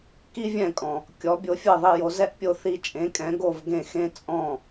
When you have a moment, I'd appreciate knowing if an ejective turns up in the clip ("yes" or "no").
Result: yes